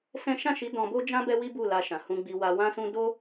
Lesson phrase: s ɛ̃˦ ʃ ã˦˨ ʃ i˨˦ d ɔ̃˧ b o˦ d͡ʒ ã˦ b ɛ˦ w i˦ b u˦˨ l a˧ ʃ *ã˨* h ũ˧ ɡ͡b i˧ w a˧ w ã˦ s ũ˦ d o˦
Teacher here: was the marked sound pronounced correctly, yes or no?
yes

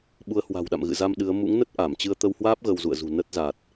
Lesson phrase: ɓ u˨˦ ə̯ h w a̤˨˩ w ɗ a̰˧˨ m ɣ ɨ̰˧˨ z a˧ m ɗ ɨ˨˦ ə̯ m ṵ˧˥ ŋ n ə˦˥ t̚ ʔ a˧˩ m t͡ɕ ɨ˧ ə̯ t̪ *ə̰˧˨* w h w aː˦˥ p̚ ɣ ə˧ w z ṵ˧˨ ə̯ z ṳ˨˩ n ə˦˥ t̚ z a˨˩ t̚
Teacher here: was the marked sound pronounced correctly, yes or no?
no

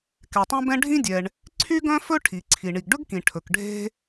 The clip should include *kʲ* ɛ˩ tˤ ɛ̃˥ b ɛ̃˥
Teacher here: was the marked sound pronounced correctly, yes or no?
no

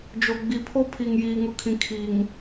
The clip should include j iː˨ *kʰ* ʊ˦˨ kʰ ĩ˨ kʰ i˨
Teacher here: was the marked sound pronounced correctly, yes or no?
no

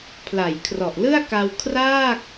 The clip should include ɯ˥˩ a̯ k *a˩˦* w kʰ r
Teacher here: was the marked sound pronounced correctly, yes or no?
no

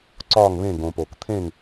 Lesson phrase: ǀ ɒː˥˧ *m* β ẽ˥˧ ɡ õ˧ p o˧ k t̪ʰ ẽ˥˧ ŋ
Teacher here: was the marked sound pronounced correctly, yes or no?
no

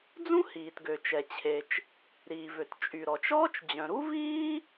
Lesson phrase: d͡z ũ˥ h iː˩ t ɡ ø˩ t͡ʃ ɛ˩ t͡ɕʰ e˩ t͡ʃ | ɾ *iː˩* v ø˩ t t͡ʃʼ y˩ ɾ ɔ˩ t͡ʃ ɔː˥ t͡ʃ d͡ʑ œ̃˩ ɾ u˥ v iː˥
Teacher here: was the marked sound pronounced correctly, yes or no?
yes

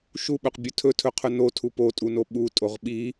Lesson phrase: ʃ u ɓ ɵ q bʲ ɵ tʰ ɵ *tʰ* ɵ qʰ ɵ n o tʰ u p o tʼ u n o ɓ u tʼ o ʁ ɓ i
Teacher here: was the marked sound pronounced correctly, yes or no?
yes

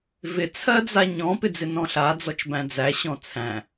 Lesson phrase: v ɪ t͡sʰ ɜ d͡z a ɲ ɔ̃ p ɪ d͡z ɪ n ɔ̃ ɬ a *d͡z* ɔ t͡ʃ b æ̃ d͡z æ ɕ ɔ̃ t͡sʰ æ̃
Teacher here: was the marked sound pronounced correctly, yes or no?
yes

